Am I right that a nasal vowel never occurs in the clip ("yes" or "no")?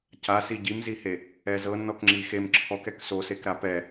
yes